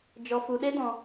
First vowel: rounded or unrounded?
rounded